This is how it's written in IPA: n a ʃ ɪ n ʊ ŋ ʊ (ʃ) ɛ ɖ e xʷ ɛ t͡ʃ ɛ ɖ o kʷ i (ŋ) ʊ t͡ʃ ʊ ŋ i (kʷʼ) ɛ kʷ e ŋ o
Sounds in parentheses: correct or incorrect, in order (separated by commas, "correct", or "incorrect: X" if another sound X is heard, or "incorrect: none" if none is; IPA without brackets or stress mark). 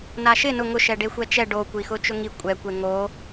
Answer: correct, incorrect: x, correct